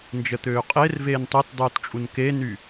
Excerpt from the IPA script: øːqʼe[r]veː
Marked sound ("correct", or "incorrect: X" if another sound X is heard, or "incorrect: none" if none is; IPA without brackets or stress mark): correct